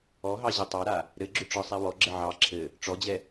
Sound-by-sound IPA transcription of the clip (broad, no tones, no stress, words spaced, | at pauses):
ɔɦɑ ʑɘtˤɑɾa | ɾɘɡ͡ǁʏ ʈ͡ʂɒsˤɛwɔɡ͡ǁə ʕɑ ǁʰɘ | ʈ͡ʂɔd͡ʑɛ